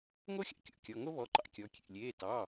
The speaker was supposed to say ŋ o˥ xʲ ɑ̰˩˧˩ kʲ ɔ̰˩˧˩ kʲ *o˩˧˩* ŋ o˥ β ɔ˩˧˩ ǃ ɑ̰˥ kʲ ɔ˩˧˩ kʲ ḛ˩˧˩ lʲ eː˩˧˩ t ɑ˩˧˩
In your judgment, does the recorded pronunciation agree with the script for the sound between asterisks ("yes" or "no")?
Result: no